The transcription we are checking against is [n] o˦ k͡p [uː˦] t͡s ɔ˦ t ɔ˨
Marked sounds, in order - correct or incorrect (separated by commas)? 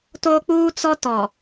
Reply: incorrect, correct